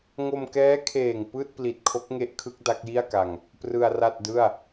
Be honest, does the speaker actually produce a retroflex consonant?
no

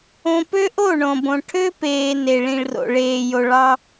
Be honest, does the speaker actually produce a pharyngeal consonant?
no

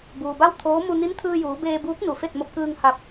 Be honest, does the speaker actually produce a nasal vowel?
no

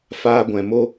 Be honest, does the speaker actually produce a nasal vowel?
yes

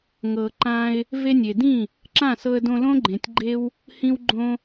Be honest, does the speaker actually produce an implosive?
no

